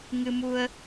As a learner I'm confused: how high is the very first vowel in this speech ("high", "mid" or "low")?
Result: high